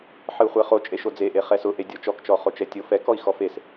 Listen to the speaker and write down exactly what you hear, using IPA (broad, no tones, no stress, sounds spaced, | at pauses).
ħ ɨ u̯ χʷ ɛ χ o t͡ʃʼ e ʃ o d͡z e ʔ e χ ɛ s ʊ ʔ e dʲ ɔ t͡ʃ ɔ k t͡ʃ ɔ χ o t͡ʃ ɛ tʲ o f ɛ k ɔ i̯ x ɔ f e s